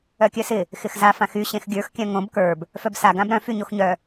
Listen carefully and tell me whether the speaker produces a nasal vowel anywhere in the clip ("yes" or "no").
yes